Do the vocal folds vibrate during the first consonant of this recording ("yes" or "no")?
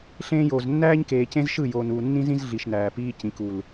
no